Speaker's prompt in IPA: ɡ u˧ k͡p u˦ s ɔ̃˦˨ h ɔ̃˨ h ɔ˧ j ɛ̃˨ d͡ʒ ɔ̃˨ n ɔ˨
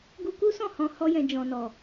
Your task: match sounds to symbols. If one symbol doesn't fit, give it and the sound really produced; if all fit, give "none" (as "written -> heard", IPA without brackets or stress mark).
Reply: k͡p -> k